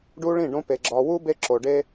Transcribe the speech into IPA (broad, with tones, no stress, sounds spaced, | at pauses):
ɖ u˦ ɭ ĩ˦˨ ɖ õ˦ p e˨ ɡ͡ǁ ɒ˨ w u˦ b e˦ ǁ o˨ ɖ e˦